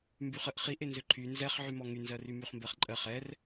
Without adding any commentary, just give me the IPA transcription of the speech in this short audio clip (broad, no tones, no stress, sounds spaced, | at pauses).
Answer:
m b y χ ə ʔ χ i ʔ e n z ø ǃʰ y n z ɛ χ ʕ y m ɔ ŋ y n z ɜ r y m y χ m b ɜ χ ǃʼ ɜ χ ɛ r